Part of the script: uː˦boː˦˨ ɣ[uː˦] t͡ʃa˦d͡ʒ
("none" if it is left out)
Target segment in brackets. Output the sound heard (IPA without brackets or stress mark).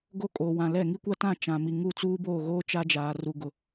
oː˦